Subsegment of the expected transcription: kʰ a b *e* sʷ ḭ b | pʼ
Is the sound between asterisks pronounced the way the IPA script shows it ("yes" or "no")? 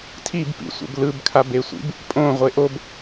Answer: yes